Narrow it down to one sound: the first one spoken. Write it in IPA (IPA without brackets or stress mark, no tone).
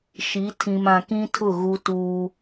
ʃ